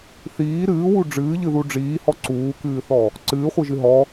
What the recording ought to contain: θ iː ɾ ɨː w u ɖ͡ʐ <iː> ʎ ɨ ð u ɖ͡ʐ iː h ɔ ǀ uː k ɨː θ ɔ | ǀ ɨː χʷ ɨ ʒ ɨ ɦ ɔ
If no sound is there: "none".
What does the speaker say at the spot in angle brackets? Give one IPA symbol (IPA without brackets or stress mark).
ɨː